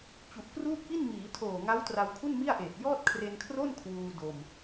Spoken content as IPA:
t͡ɕ u˨˩ ʔ k r uː˥˩ k̚ p i˥˩ n m iː˩˦ tʰ oː˨˩ ŋ a˦˥ w t r a˧ w kʰ u˥˩ n m i˥˩ a̯ ʔ eː˨˩ t̚ j ɔː˥˩ t̚ kʰ r e˧ n kʰ r o˥˩ n kʰ w uː˧ d o˧ m

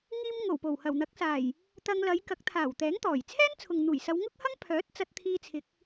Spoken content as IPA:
ŋ iː˧ m ŋ o˨˩ w p o˨˩ w h ɐ˨˩ w n̪ ɐ˨˥ k̚ s aː˨˩ j | t̪ ɐ˧ ŋ l ɐ˨˧ j k ɐ˨˥ k̚ t̪ʰ aː˨˩ w t̪ ɛː˨˥ ŋ t̪ ɔː˨˩ j t͡sʰ ɛː˥ n t͡sʰ ʊ˨ ŋ n̪ uː˨˩ j s ɐ˨˧ w ŋ ʊ˥ k̚ h ɐ˥ ŋ pʰ œː˨˥ t̚ t͡s ɐ˧ t̚ t̪ʰ iː˧ t͡sʰ ɪ˨˥ k̚

